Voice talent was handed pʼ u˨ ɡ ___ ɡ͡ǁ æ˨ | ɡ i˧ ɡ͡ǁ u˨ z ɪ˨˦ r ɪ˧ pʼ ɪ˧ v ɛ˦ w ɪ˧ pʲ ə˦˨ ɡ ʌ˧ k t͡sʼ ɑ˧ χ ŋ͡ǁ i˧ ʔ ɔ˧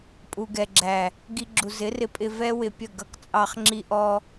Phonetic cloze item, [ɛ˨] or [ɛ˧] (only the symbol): ɛ˨